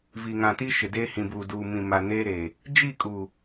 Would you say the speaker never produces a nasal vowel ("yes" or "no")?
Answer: no